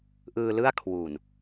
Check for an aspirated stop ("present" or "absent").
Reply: present